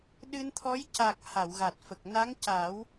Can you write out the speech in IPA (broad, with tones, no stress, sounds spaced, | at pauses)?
ɗ ɨ˧ n t̪ʰ ɔ˧˥ j c a˨˩ k̚ h a˨˩˨ w ɣ a˨˩ t̚ f ə˨˩ k̚ n a˧˥ ŋ c a˨˩˦ w